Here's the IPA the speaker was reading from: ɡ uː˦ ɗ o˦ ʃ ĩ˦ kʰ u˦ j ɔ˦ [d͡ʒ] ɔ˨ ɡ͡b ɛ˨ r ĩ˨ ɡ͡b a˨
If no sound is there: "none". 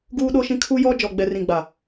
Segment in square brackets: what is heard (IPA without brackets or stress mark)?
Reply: d͡ʒ